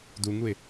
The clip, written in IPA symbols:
d u ŋ u ɪ̯

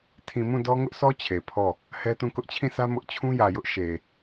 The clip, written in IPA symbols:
tʰ ĩ˨ m ũ˦˨ d ɔ˦ ŋ ʊ˦ ʔ sʰ ɔ˦ t͡ɕʰ e˨ pʰ ɔ˦˨ | h ɛ˦ t ũ˦˨ k ʊ˦ ʔ t͡ɕʰ ĩ˦˨ sʰ ä˦ m ʊ˦ ʔ t͡ɕʰ ũ˦ j ä˨ j ʊ˦ ʔ ʃ e˨

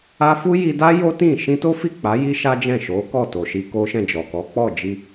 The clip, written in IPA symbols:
a˦ f u˦ j i˧ d a˦ j o˦ t ĩ˦˨ ʃ ĩ˧ t o˦ f i˦˨ k͡p a˨˦ j i˦ ʃ a˦ d͡ʒ ɛ̃˦˨ ʃ o˨˦ k ɔ˦˨ t o˨ ʃ i˧ k o˦ ʃ ɛ̃˦˨ d͡ʒ ɔ˨ k ɔ˨˦ k͡p ɔ˦˨ d͡ʒ i˧

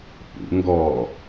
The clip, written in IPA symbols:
p ṵ ŋ ɡ ɔ

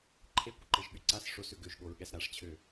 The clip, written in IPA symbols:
ǃʰ e kʷ ə ǃ e ʒ ɠ y ǀ a s ʂ o s ø ɡ ø ʒ ɠ o ɹ ɠ ɛ s ɾ a ʂ t͡ɕʰ ø

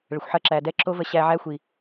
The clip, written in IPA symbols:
ɭ ə˨ xʷ ħ ɐ˧ ǁ æ˨ d ɛ˦ ǁ o˦ v ə˧ ɕ æ˧ ʕ æ˦ xʷ i˨

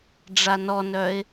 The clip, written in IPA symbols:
ɖ͡ʐ a n ɔ n œ ɪ̯

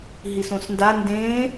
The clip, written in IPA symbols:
ɦ i s õ s n d a n d ẽ

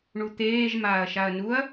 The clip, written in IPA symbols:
ɳ u t̪ eː ʒ m aː ɐ̯ ʃ a ɐ̯ n u ɐ̯

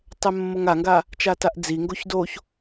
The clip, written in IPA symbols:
tˤ ɛ mː o ŋ a ŋ ɡ a | t͡ʃ a t a ʔ d͡z i ŋ ɡ o ç d o ç

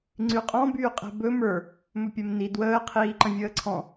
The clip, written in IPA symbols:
ŋ͡ǀ y qʼ ɔ̃ b yː qʼ ɛ̤ b ɵ m ə˞ | m ɵ pʲ ɛ m n i d w əː qʰ iː ǃ ə̃ vʲ əː ǀʰ ɔ̃

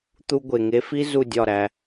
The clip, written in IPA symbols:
t̪ u˧ ɡʷ e˨ ŋ e˧ f i˦ z u˦˨ dʲ ɒ˦˨ ɾ æ˧

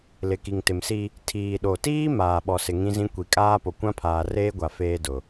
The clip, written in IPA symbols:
l ɪ˨ k i˨ ŋ t ɪ˨ m s i˦ | tʰ iː˨ ɗ o˨ t iː˦ m aː˨ ɓ ɔ˨ s ɪ˨ ŋ ĩ˦ z ĩ˦ kʷ i˨ kʼ aː˦ p o˨ kʷ ã˦ pʰ aː˨ r eː˦ ɡʷ a˨ f eː˦ d ʊ˨

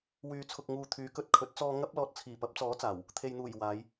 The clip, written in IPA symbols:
w yː˨ t͡sʰ ʊ˨ k̚ ŋ uː˨ t̪ʰ yː˨˧ k ɵ˧ t̚ kʰ ɵ˨˥ t̚ t͡s ɔː˧ ŋ ɐ˥ p̚ l ɔː˧ t̚ t͡sʰ iː˨˩ p ɐ˨˥ p̚ t͡s ɔː˨˥ t͡s aː˨˩ w | t̪ʰ e˨ j n̪ uː˨˩ j w aː˨˧ j

